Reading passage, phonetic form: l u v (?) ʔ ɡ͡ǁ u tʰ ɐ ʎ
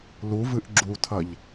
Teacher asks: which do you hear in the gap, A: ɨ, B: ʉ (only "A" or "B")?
A